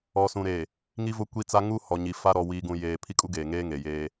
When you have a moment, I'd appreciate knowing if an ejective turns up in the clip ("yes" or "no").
yes